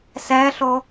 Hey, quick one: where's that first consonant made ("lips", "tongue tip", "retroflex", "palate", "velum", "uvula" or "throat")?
tongue tip